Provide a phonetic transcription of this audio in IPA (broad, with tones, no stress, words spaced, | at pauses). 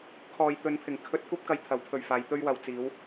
kʰɔː˨jt̪ɵ˨˧npʰɪ˨˩ŋ kʰɵ˧t̚kʷɐ˥p̚ kɐ˧jt̪ʰɐ˨˥wpʰɵ˨ɥfaː˨˧j t̪ɵ˧ɥwɐ˨wt͡siː˨˧w